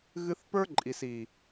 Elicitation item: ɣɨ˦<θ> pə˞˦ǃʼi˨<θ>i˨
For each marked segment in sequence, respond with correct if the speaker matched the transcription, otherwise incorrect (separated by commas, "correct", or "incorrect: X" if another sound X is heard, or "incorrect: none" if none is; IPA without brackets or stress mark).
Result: correct, incorrect: s